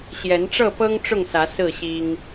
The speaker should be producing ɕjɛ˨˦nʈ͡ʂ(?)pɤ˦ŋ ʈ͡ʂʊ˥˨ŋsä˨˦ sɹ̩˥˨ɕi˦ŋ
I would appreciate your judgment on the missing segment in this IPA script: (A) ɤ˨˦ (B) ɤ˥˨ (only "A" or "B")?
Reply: B